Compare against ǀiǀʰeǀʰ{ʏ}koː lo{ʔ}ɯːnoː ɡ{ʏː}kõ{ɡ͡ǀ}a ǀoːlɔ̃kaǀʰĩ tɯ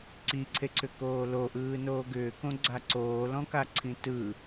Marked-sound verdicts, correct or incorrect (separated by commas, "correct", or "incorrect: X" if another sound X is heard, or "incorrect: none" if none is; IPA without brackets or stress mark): correct, correct, correct, correct